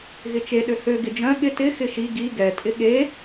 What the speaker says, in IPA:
ɣɪt͡ʃe ɗøhø ɡɪd͡ʒœ̃ ɠɪ tɪ xɪʃi ɡi ɡɛ tʼɪɠe

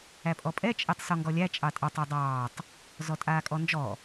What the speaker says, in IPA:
æpʼɔpʼɛ t͡ʃʼɛtˤsɔŋɡɔlʲæ t͡ʃʼɑtʼɑtˤ adˤɑːtˤ | zɔtʼaːkʼɔnd͡ʒɔ

